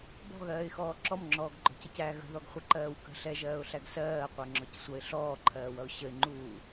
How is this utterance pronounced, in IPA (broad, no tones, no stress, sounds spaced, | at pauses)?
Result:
b ɔ̤ ɣ ɜː ɪ̯ x ɔː ǁ ɔ m ŋ͡ǁ ɔː ɡ ɡ͡ǃ ɔ̤ c ʌ c æ ɣ ə̤ ð ɔ ɡ χʷ ʌ ǃ ɜː w k ə̤ ɬ ɛ ʒ ɜː ʊ̯ ɬ æ ɡ s ɜː qʷ ɜ ŋ͡ǁ ɔ c sʷ ʌ ɪ̯ ɬ ɔː ǃʰ ɜː w ʌ ʊ̯ ɕ ə ɪ̯ ŋ͡ǃ uː